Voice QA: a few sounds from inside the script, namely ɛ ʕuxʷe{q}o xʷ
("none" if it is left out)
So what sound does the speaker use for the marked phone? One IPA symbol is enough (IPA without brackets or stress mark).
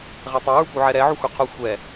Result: qʰ